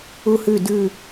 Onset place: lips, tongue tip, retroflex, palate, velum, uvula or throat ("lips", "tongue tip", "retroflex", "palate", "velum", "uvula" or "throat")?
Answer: throat